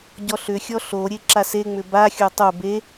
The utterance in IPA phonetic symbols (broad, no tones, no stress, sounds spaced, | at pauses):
ɟ ɔ ɬ ʏ xʲ ɔ ɬ o ɾʲ e ǁ a s e ŋ͡m ʏ b a xʲ o tˤ o b e